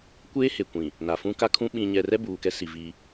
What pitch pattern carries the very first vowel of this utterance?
high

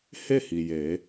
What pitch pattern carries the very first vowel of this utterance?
falling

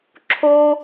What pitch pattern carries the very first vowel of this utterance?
high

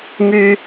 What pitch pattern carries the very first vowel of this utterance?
high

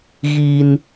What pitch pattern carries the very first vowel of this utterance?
high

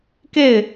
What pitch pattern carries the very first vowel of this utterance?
falling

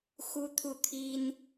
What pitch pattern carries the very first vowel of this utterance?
high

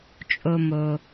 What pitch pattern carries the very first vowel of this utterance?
low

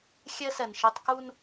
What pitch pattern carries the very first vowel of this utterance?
high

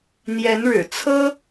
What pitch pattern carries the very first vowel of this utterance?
rising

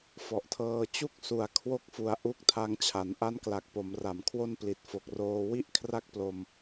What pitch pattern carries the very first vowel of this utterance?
low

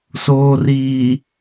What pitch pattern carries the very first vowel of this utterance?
low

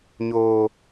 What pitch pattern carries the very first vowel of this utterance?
high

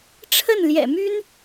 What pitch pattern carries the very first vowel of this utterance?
falling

